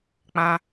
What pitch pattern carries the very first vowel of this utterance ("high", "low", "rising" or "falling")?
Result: high